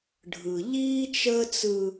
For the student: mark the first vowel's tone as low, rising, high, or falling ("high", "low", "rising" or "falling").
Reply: low